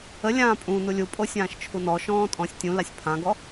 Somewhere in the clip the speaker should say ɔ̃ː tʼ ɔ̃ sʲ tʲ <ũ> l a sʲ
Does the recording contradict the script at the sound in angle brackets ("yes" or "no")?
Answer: no